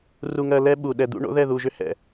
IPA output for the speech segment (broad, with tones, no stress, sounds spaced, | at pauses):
r u˨ ŋ ɜ˨ l ɛ˦ ɓ u˨ ɗ ɛ˨ d̪ ṵ˦ ɳ o̰˦ ð ɛ˦˨ ð u˨ ʒ ʏ˦ h ɛ̰˨